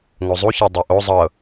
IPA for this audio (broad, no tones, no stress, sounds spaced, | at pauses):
ŋ o zˤ u ç a dˤ ɤ ʔ o zˤ ɤ